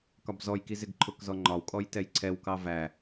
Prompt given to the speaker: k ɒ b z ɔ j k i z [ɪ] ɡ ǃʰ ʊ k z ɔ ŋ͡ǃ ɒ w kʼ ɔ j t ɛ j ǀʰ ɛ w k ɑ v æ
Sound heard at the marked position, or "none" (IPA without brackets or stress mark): ɪ